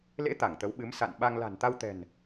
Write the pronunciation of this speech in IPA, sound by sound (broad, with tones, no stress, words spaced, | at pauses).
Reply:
lḛ˧˥ t̪a˧˩ŋt̪ə˨˦wɓɨ˨˦m sa̰˧˨nɓa˧ŋ la̤˨˩nt̪a˧wt̪ɛ̤˨˩n